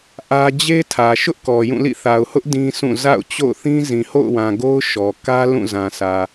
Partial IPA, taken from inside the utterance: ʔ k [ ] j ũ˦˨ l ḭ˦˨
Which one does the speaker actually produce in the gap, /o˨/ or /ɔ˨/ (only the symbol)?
ɔ˨